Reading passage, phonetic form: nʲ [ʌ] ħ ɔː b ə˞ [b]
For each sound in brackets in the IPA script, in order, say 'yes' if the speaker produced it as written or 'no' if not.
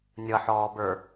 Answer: yes, no

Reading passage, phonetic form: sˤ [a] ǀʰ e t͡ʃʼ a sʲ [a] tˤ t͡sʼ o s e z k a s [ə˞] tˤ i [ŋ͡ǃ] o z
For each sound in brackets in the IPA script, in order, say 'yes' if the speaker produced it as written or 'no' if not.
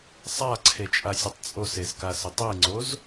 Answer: yes, no, no, no

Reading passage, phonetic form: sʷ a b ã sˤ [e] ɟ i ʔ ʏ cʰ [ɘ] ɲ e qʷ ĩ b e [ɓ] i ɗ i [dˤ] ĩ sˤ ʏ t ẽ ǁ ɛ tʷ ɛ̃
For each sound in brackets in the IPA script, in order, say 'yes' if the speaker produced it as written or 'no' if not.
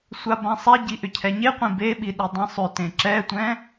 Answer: no, no, yes, yes

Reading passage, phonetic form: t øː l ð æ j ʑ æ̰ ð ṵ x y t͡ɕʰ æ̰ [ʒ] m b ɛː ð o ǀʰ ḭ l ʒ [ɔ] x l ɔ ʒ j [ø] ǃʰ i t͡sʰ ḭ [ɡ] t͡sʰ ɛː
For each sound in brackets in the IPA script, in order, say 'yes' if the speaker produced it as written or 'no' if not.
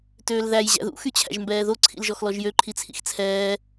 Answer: yes, yes, yes, no

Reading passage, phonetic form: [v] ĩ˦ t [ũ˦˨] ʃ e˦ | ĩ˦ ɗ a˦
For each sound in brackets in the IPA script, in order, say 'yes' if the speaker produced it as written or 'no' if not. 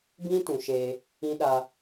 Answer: no, no

